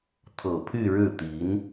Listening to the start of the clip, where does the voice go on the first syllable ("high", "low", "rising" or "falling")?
low